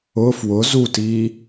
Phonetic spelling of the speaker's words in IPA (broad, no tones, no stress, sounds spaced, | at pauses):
ʊ f w ʊ z u t iː